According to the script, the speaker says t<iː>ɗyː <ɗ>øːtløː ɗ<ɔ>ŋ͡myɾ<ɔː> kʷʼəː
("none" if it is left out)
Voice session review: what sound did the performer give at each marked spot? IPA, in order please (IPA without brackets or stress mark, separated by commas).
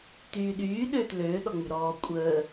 yː, ɗ, ɔ, ɔː